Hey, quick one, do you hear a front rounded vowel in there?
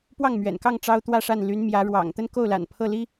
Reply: yes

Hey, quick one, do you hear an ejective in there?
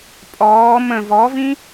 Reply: yes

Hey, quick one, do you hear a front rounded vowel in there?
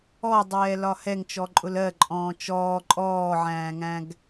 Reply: no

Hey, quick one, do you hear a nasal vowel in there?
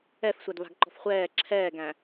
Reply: yes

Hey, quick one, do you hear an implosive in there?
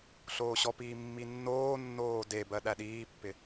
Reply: yes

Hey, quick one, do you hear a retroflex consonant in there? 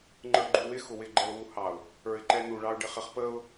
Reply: yes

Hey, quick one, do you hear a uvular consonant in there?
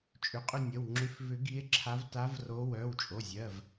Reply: yes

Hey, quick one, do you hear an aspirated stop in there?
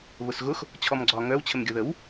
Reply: yes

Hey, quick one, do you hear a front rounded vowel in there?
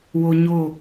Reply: no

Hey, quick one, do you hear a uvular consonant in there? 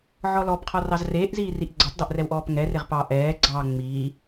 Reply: yes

